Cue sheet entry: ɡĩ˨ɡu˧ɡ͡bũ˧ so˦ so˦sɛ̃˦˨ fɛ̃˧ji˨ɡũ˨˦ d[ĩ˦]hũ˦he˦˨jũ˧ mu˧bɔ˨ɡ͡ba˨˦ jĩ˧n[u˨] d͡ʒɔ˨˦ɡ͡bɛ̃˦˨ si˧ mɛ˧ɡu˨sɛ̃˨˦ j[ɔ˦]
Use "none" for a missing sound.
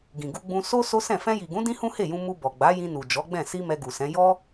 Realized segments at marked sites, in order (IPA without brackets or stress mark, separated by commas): ĩ˦, u˨, ɔ˦